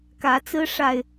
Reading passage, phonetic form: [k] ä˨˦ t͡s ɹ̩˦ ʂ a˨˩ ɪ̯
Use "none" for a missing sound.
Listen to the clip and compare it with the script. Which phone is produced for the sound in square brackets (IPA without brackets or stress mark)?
k